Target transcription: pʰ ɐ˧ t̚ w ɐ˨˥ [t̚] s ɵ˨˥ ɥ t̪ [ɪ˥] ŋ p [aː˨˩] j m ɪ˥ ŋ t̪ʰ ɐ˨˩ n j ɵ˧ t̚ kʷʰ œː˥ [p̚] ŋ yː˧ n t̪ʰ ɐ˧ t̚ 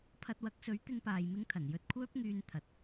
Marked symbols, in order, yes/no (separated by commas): no, yes, no, yes